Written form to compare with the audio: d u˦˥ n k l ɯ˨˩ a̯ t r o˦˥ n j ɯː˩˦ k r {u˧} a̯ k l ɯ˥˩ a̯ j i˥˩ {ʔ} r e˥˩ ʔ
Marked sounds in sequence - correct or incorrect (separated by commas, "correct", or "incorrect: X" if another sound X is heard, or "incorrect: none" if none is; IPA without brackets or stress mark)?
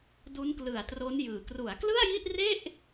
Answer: incorrect: u˩˦, correct